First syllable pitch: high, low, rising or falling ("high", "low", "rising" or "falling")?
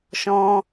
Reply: high